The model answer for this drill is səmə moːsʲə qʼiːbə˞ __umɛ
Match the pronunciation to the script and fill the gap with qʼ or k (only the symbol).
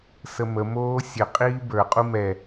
qʼ